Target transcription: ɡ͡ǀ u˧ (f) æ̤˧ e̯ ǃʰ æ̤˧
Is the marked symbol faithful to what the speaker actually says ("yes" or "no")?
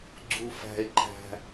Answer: yes